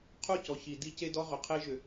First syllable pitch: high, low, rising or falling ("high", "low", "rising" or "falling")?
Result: falling